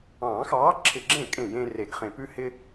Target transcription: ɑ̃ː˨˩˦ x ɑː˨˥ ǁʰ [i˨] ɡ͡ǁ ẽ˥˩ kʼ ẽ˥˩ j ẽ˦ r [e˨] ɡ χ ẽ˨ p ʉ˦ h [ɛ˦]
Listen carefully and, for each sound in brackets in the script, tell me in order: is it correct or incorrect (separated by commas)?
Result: incorrect, correct, incorrect